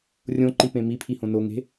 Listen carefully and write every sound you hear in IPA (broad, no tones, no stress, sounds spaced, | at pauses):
rʲ õ ǃ i p ẽ m i pʰ i h õ n o ŋ e̤